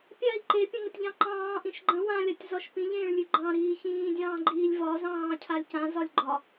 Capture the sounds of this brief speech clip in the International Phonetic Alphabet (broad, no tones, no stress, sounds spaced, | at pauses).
pʲ a i̯ ǃ e pʲ ə̃ ŋ ə tʲ ʎ ɑ̃ ǃ ɑ̃ː ʔ ĩ ʃ ɡ͡ǃ ə̃ w ã lʲ a tʲ z ɒ ʃ p ĩ ʎ ẽː ɭ lʲ ʉ ɡ͡ǃ ɑ̃ ɾ iː ç ĩː dʲ ɑ̃ː ɡ͡ǃ iː lʲ v ɒ z ɑ̃ː cʰ a lʲ c ã z ɒ lʲ ɡ͡ǃ ɒ